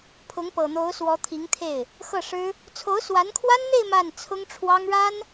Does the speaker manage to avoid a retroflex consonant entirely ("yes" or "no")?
no